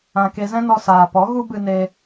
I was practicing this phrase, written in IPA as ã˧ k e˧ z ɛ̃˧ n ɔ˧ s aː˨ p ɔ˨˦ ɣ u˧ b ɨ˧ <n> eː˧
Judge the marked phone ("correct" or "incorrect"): correct